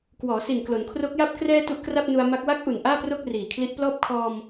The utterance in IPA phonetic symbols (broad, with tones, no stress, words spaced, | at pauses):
kwɔː˩˦si˨˩n klo˩˦nkʰro˦˥k̚ja˥˩p̚ krɛː˧ tu˦˥ʔkra˥˩p̚nu˧a̯ma˦˥k̚ wa˦˥k̚ʔu˨˩n ʔaː˥˩pro˥˩k̚riː˨˩ kʰli˦˥ʔplɔː˥˩p̚ kʰɔː˧m